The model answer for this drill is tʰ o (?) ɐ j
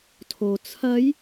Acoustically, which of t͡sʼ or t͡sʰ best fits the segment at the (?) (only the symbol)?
t͡sʰ